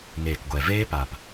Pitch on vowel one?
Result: low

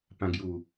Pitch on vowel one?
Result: high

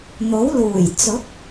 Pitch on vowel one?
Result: rising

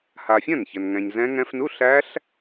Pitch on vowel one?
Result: low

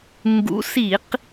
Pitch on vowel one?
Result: rising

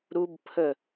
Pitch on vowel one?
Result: high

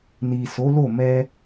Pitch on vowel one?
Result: low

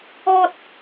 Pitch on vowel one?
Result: high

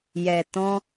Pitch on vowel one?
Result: low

